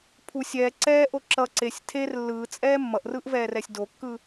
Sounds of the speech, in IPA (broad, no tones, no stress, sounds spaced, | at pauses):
pʰ u sʲ ɛː ǀ ɛː ʔ o ǁ ʌ ǀ e sʲ tʰ e r lː ɯː t͡sʼ ɛː mː ʌ ʔ r ɯː ʔ v ɛː r ɛ sʲ d o kː ɯ